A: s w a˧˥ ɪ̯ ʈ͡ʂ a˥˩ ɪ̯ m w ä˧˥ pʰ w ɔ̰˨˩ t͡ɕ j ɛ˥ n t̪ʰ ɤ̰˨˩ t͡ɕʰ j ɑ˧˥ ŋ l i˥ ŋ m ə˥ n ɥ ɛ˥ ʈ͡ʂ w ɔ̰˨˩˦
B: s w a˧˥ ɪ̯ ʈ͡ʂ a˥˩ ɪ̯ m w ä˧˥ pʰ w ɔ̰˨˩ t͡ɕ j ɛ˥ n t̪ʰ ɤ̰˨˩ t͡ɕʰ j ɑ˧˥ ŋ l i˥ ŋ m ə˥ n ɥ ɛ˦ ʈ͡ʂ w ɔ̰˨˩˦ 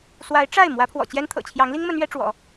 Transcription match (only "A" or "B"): A